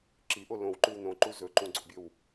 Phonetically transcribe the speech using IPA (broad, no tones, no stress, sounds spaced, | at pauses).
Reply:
ǁ i ʔ o l õ w ǃ ʉ w n õ ǃ u z ɵ ǃ ũ ɡ͡ǀ o̰ bʲ ɵ w